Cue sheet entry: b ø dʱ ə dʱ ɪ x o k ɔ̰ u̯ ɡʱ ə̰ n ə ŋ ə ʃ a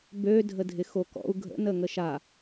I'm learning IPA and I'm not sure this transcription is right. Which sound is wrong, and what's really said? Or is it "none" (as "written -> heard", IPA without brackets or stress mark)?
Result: none